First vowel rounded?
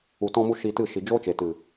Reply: yes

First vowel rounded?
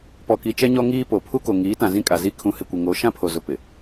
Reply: yes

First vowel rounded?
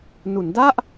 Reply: yes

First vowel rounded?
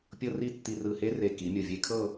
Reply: no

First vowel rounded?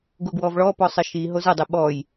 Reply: yes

